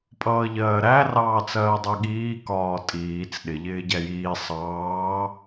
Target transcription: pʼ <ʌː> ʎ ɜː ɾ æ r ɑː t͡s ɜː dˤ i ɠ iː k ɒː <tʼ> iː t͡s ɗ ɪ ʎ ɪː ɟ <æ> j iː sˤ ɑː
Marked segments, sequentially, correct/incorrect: correct, correct, correct

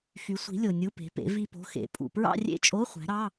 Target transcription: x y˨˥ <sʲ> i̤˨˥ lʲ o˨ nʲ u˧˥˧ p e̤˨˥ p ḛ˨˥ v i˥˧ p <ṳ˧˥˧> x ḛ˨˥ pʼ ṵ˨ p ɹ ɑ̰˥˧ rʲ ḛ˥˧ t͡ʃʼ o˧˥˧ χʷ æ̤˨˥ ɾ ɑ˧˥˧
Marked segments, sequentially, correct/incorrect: incorrect, incorrect

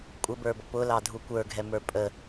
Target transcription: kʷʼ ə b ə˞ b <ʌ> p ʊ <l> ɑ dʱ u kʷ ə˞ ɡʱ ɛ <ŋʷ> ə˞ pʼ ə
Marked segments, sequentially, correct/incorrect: correct, correct, incorrect

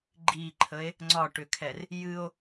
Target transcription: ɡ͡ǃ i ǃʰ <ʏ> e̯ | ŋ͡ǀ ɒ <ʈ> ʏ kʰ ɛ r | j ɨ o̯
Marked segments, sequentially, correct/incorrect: incorrect, correct

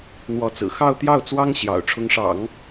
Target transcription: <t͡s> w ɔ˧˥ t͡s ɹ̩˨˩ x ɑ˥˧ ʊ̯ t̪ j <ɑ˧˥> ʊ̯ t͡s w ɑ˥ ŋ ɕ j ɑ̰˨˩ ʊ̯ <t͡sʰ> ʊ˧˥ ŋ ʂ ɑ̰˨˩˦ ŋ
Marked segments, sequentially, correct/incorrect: incorrect, incorrect, incorrect

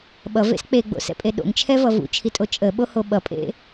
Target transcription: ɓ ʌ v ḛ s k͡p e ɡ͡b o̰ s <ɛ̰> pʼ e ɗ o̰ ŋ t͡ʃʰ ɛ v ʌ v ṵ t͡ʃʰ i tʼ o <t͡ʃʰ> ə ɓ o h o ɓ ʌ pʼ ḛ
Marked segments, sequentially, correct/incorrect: correct, incorrect

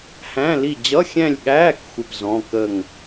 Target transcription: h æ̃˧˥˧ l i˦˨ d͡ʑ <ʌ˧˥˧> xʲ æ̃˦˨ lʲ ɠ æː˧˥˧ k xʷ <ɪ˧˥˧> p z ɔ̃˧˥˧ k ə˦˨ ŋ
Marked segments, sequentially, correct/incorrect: correct, incorrect

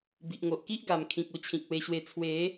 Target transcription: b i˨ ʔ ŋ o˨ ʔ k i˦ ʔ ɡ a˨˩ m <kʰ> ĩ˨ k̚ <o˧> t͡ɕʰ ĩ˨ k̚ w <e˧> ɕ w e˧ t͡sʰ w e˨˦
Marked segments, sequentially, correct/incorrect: correct, correct, correct

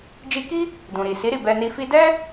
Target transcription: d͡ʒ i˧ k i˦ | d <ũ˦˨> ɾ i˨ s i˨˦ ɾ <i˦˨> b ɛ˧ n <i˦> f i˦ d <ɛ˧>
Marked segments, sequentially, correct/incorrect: incorrect, correct, incorrect, incorrect

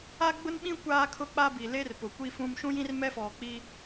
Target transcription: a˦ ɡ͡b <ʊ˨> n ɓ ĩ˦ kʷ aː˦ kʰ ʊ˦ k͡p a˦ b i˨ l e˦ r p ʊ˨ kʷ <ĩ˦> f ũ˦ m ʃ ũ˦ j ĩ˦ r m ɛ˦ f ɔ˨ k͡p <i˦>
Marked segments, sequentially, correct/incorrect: incorrect, incorrect, correct

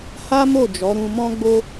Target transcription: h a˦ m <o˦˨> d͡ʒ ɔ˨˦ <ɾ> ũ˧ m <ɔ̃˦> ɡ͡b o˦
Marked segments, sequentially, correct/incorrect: correct, correct, correct

